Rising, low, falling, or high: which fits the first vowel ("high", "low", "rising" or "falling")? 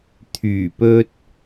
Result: low